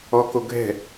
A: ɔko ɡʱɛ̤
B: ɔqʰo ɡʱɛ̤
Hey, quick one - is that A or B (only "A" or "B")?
A